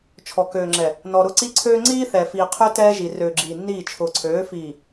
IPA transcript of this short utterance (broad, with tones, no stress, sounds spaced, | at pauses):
t͡ʃʰ ɔ˨ k øː˨ ŋ͡ǁ ɛ˨ | n ɔ˨ ɾ ʊ˦ ǀ i˦ ǀʰ øː˦ ŋ͡ǀ iː˦ θ ɛ˨ f iː˨ qʰ ø˦ t ɛː˦ ʒ i˨ r øː˨ ɡ͡ǁ iː˨ nː iː˦˨ t͡ʃʰ ʊː˨ ǀʰ øː˨˦ f iː˨